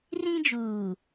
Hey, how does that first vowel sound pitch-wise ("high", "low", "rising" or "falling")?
high